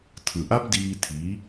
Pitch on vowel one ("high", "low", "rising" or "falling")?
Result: low